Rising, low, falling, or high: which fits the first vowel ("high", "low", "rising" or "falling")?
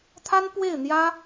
high